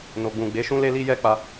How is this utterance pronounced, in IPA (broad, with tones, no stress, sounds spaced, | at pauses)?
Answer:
n o˨ ɡ͡b ũ˨ ɡ͡b e˨˦ ʃ ũ˦ l e˦ l i˦ j ɛ˦ k͡p a˧